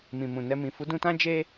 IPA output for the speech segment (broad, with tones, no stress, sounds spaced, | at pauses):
m ĩ˨ m ũ˨ n ɛ˧ m ĩ˨ f u˨˦ d ũ˧ t ã˦ d͡ʒ e˦